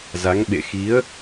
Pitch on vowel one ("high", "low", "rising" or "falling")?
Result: rising